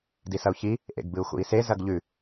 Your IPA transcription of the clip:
d i s ɐ u̯ ç i | ʔ ḛ ɡ b ɨ u̯ x ṵ i̯ s e z ɐ ɡ ʎ ʉ

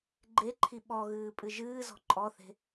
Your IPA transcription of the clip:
ɡ͡ǃ e ǃʰ i ɓ ɔ ɣ ɨː pʼ ɨ ʒ ɨː z ɔ̤ ǃʼ ɔ θ e̤

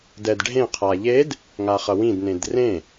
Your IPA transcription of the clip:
d ɛ d ɖʱ ẽ qʰ a ʎ e d | ŋ a χ ʌ w ĩ d n ẽ d r ẽ

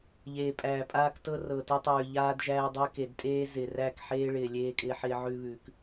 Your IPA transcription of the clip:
ʎ eː˨ pʼ æː˨ pʼ aː˦ k t ɤ˦ r ɤ˨ t ɪ˦ tˤ ʉː˨ ʎ aː˦ d ʒ æː˦ dˤ ɪː˦ k e˨ d tʼ eː˦ z ɪː˨ r æ˦˨ k ħ eː˦ ɭ ɪː˨ lʲ eː˦ kʼ ɪː˦ ħ ɪː˦ ʕ ʉ˦ β ʉː˨ k

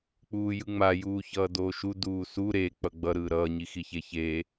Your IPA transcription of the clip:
k͡p uː j ɯ ŋ͡m a j uː ç ʌː d oː ʃ u d uː s u ɾ e k͡p ʌ ɡ͡b ʌ ɾ ɯː ɾ ʌː ɲ i x i ç e ç eː

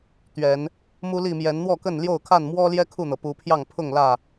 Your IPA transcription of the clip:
t̪ ɥ ɛ˨˦ n | m u˦ l i˥˨ m j ɛ˨˦ n n̪ w ɔ˥˨ k ə˥˨ n l j o˥˨ ʊ̯ kʰ a˥˨ n m w ɔ˦ l j ɛ˦ kʰ u˥˨ n̪ ɤ˩ p u˨˦ pʰ j ɑ˥˨ ŋ pʰ ʊ˥˨ ŋ l ä˥˨

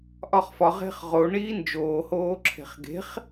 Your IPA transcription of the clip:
ʔ ɒ χ f ɒ ʁ e̤ χ ʁ o ɳ iː n d͡ʒ oː h oː ǁʰ e̤ χ ɡ e̤ χ

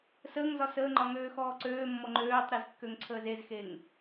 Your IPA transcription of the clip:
s əː ŋ z ɒ s əː ŋ͡ǃ ɒ ŋ øː x ɔː ǀ øː mː ɔ ŋ͡ǃ øː tˤ ɾ e z kː ø ŋ ǀʰ əː z e z x e ŋ

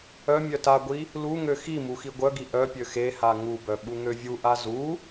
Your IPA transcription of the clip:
œ mʲ œ t a ɡʷ i | l u ŋ ø x i m u x i ɡʷ œ ɡ i ʔ œ pʲ ø x e h a ŋ u b œ ɓ u ŋ ø vʲ u ʔ a z u

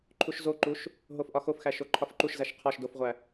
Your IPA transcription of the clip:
ǃʰ u ʃ z o ǃ u ʃ | ɦ o f ʔ ɒ x o f x æ ʃ o ǃʰ ɒ f ǃ u ʃ z æ ʃ qʰ ɒ ʃ d o f ʁʷ æ

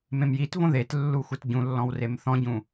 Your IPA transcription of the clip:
m ẽ m j i t v õ ð e t lː u xʷ e t ɟ ũ lː ɔ̃ w r e m θ ɔ̃ ɟ ũ

